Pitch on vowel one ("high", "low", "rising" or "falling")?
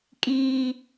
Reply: high